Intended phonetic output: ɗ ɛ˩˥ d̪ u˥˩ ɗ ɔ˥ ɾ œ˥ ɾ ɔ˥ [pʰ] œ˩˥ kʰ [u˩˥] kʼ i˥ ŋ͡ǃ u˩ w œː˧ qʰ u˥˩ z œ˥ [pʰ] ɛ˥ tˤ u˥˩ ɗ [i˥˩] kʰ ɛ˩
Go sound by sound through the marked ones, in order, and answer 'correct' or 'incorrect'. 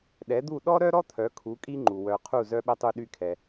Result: incorrect: t̪ʰ, correct, incorrect: ɓ, incorrect: y˥˩

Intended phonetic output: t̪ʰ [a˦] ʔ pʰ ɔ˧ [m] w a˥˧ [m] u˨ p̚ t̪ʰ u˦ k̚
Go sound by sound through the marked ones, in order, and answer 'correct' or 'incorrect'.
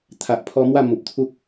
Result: incorrect: a˨, correct, correct

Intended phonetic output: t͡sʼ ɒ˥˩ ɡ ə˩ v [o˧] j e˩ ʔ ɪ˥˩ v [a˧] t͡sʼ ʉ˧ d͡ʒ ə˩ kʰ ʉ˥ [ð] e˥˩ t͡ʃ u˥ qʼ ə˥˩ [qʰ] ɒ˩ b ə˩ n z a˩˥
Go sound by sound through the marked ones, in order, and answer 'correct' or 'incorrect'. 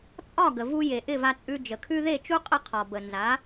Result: incorrect: u˧, correct, correct, correct

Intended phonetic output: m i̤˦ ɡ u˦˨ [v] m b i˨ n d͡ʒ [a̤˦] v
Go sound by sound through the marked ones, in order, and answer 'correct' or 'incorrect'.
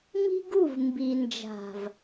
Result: correct, incorrect: a̤˨

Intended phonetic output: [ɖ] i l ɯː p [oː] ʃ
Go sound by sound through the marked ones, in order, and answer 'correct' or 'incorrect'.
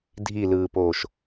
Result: incorrect: dʱ, correct

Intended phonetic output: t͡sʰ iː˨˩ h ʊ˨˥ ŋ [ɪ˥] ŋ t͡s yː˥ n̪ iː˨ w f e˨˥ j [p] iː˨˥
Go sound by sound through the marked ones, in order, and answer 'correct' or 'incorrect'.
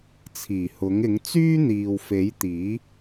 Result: incorrect: ɪ˨˥, incorrect: t̪

